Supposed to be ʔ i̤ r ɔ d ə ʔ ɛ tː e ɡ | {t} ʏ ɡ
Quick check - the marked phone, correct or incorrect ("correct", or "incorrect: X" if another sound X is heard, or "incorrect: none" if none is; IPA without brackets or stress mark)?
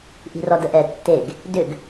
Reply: incorrect: d